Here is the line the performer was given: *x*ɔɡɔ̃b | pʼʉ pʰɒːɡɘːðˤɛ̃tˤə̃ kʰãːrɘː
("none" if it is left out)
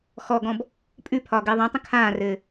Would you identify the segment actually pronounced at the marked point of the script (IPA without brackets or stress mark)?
x